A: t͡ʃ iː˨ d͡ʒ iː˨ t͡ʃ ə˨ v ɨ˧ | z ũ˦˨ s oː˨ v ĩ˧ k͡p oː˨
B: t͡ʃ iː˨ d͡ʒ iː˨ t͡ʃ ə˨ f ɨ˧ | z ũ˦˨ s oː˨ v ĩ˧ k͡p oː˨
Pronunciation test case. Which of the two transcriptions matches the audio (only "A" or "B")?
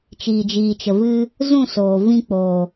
A